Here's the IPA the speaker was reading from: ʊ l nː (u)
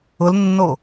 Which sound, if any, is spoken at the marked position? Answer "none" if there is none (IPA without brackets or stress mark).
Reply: o